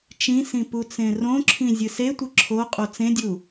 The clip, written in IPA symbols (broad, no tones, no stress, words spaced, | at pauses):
t͡ʃĩsĩ put͡sẽrõǁʰĩ zʲɨsetʷɨ ǁʰo qʼot͡sẽdʲu